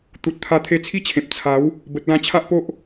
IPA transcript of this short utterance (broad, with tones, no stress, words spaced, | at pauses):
t̪u˨t̚t̪ʰa˧ t̪ʰe˧t͡sʰi˥˧t͡ɕʰẽ˨p̚ t͡sʰa˨˦w | bə˨t̚lã˧t͡ɕʰa˦ʔpo˦ʔ